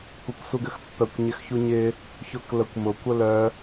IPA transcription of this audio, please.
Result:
kʷ ɐ kʷ s u ɡ ʏ x pː œ kʷ ɲ ɪ x ç u ɲ ɪ | ç ʊ k l ə kʷ m ʊ kʷ ə l œ

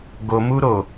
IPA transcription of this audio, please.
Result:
ɡ o m u ɾ o

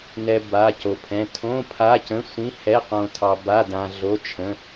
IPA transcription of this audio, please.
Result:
n ɛ˧ b a˧˥˧ c o˧ pʰ ɛ̃˧˥˧ tʰ õ˧˥˧ pʰ a˧˥˧ c ə̃˧˥˧ sʷ ĩ˧˥˧ h ɛ˧˥˧ q õ˧ tʰ ɑ˧ b a˧˥˧ d ã˧ ɮ o˧˥˧ t͡ʃʰ ə̃˧˥˧

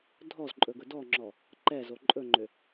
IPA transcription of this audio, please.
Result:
dʱ ɔ z ǃʼ ɵ ɡ ɵ d ɔ ŋ͡ǁ ɔ | ǃ ɛ z o ǃʼ ɵ ŋ͡ǃ ø

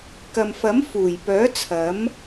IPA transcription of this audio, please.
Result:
k ɐ˨ m f ɐ˨˥ m f uː˨˩ j p œː˨˥ t͡sʰ ɐ˨˥ m

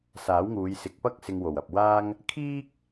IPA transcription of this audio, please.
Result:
s aː˨˥ w ŋ uː˨˧ j s ɪ˨˥ k̚ p ɐ˥ k̚ s ɪ˧ ŋ w o˨˩ w ɐ˨ p̚ w aː˥ ŋ | kʰ iː˥ k̚

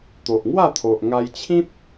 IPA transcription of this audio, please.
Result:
t̪ o˨ ʔ ŋ w a˥˧ t̪ʰ o˨ ʔ ŋ a˧ j t͡ɕʰ ĩ˦ t̚

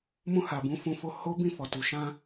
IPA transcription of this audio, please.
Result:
m ũ˧ h a˨ b ũ˨˦ f ũ˧ f o˧ h o˦ b ĩ˦˨ f ɔ˨ t u˨ ʃ ã˧

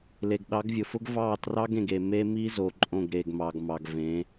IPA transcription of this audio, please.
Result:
l e˨ ɡ ɗ ɑ˨˦ ɡ vʲ ʊ˨ f ʊ˦ ɡ v ɑ˦˨ t r ɑ˦ ɡ ẽ˨ ɡ e˨ m e˦ m i˦ z o˨ ǃʼ õ˦˨ ɡ ɾ e˨ ɡ m ɑ˨ ɡ m ɑ˨ ɡ v ẽ˨˦

